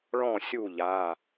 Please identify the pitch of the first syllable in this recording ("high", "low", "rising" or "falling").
falling